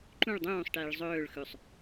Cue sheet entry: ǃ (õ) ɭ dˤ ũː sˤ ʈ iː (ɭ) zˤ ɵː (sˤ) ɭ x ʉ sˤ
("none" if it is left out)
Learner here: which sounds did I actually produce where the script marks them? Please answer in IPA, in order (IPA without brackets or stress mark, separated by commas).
ũ, ɭ, none